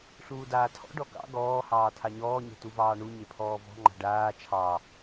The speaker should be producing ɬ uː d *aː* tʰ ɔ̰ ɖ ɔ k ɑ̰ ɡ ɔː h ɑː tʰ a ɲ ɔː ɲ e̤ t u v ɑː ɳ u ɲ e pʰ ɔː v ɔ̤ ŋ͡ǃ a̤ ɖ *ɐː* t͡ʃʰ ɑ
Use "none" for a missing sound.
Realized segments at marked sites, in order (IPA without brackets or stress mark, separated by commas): aː, aː